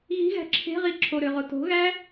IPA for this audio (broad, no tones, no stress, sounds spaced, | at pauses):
ɣ i̤ ɣ æ̤ ǁʰ e̤ ʁ i ǁʰ o ɾ ø ʁ o t o̤ ɣ æ